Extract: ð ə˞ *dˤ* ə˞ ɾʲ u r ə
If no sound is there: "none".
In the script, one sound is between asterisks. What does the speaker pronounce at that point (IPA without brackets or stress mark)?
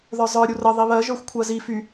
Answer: zˤ